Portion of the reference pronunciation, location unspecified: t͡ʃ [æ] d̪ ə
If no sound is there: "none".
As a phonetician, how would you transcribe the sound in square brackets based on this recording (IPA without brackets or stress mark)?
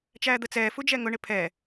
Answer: æː